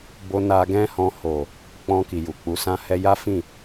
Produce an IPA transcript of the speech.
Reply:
b o˧ n a˧ ɡ ɛ̃˦ h ɔ̃˧ h o˨ | k͡p ɔ̃˧ k i˨ j u˨ k͡p u˨˦ s ã˦ h ɛ˦ j a˦ f ĩ˦˨

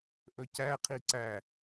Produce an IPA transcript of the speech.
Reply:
ʔ ɵ c æ qʰ i ǀ æ

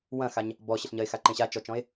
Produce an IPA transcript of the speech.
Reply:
w ɐ̃ x a ɲ | b ɔ ɕ ɘ ɬ ɲ ɐ e̯ x a ǃ ẽ ɕ a t͡ʃ ɔ t͡ʃ ɔ̃ e̯

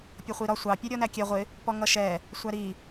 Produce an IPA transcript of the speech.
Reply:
pʲ ʌ χʷ i ɾ ɒ sʷ ɑ pʲ ɜ ɾʲ ɔ n æ kʲ ɛ ʁʷ ɪ | p ɔ ŋ ʌ ʃ ɛ | sʷ æ ɾ i

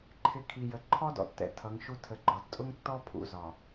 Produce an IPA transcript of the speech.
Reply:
ǃʰ ɪ˨ kʰ i˨ j ə˨ ǃʰ ɔ˦ d ɔ̰˨ tː ɛ̰˨ tʰ ʌ˨˦ ŋ ʃ u˦ tʰ ə˨ ɡ͡ǃ ɒ˨ d tʼ ʊ˦ ŋ tː ɔ˦ pʰ ṵ˨ z ɒ˨

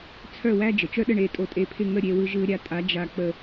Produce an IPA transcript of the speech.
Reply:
t͡sʰ œ˥˨ w æ˥ d͡ʒ ə˩ t͡ʃ œ˥ ɗ ə˥˨ ɳ e˧ tʼ o˧ tʼ e˧ pʰ ɪ˥˨ ŋ ə˥˨ ɾʲ e˧ w ɯ˧ ʒ ɯ˧ ɾʲ a˧ tʼ a˨˥ d͡ʒ a˧ k͡p ə˧

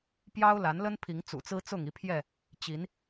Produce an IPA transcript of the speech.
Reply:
p j ɑ˦ ʊ̯ l a˨˦ n l ə˦ n pʰ i˨˦ ŋ t͡s ṵ˨˩ t͡s ɹ̩˦ t͡s ʊ˥˨ ŋ i˥˨ pʰ j ɛ˥˨ | t͡ɕ i˨˦ n

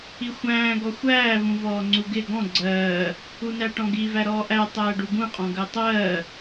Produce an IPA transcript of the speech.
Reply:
i xʷ æ̃ː ɡ ɔ xʷ æː v ũ v ɔː ŋ͡ǀ u ɡ ɪ ɡ ɔ̃ ɡ͡ǀ ɜː | u n æ ʈ ɔ̃ ɡ i v æ ɾ ɔː ʔ æ tˤ æː ɖ u ɡ ũ qʼ ɔ̃ ɡ ɜ tˤ ɜː

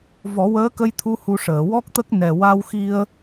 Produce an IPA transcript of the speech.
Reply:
v ɔ˨˩˦ w əː˧˥ k ə˧ j t̪ʰ u˧ h u˧ ʂ əː˨˩˨ w ɔ˦˥ k̚ t̪ ə˦˥ k̚ n ɛ˨˩ w a˧ w x i˧ ə̯

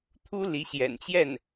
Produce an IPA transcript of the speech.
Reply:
t̪ʰ u˥ l i˧˥ ɕ j ɛ̰˨˩ n t͡ɕ j ɛ˥˩ n

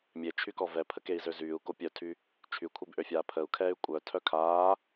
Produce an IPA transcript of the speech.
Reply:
mʲ e t͡ʃʰ y k ɔ v ɛ pʰ ə k e i̯ z ø z yː u̯ k o pʲ œ tʰ y | t͡ʃʰ y kʷʰ e b ʔ ø fʲ aː pʰ ə u̯ kʰ ɛː y̯ kʷʼ œ tʰ œ kʰ aː

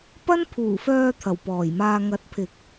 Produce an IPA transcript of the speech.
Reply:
p ɐ˥ n pʰ uː˨˩ f œː˧ t̪ʰ ɐ˨˩ w p ɔː˨˩ j m aː˧ ŋ ɐ˨˥ t̚ pʰ ɪ˨ k̚

